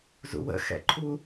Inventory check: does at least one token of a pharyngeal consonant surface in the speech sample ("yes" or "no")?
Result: no